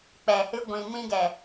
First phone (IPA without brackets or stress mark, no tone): k͡p